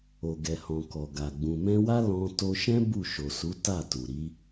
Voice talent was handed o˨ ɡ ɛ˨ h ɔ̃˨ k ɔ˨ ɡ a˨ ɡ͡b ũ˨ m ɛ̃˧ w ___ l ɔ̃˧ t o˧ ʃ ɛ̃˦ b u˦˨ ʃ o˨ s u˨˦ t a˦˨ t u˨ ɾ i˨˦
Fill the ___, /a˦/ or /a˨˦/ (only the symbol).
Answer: a˦